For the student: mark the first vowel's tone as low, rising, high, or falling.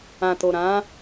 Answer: low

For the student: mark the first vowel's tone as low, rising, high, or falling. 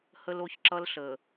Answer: high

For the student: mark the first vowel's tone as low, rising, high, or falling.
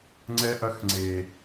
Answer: high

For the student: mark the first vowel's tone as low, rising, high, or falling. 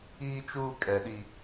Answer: high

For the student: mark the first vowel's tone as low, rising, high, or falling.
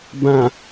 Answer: low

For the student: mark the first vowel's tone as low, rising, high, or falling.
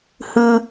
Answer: high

